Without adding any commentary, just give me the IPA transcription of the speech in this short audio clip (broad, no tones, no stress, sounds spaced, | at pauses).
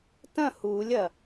t ɐ̃ h u lʲ ɐ